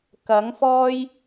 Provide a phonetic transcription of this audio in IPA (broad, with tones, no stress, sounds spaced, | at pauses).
k ɐ˨˥ ŋ f ɔː˥ j